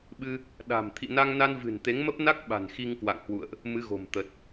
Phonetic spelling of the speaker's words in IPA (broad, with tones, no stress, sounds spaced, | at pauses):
ɓ ɨ˧ | ɗ a̤˨˩ m t̪ʰ ḭ˧˨ n a˧ ŋ n a˧ n v ɨ̤˨˩ n t̪ e˨˦ ŋ m ə˦˥ p̚ n a˦˥ k̚ ɓ a̤˨˩ n x i˧ ŋ k w a̰˧˨ ŋ h w ṵ˧˨ ə̯ ʔ | m ɨ˨˦ ɣ o̤˨˩ m t̪ ə˨˩ t̚